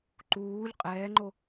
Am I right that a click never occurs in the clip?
no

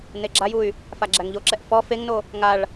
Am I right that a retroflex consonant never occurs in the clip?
no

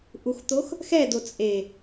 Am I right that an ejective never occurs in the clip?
no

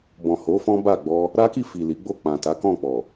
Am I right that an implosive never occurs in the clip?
yes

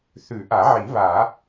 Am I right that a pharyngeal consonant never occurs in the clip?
no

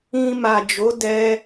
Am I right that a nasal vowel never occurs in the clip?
no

